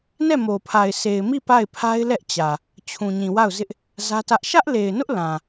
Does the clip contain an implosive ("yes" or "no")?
no